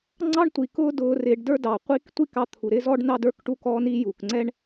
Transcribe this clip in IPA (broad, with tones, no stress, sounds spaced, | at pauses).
ŋ͡ǀ ɑ˦ ɳ tʷ i˨ k ʊː˦ d ʊː˧ r ɪː˧ ɖ d ə˞˦ d ɑ˨ qʷ i˦ k tʷ i˦ k ɑ˧ t̪ʰ u˨ ɾ ɪː˦ z ɔ˦ ɖ n ɑ˦ d ə˞˦ k ʈ u˦ k ɔː˦ n i˦ j u˨ k ŋ͡ǀ ɛ˦ ɳ